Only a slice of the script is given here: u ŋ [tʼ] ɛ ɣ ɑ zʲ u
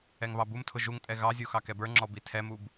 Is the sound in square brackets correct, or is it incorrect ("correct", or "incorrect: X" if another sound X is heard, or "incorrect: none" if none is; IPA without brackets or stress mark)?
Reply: correct